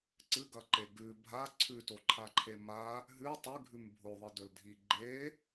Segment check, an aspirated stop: present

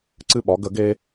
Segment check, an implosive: present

